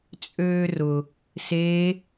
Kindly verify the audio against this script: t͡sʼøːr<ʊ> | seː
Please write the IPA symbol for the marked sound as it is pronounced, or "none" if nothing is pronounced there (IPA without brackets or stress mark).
ʊ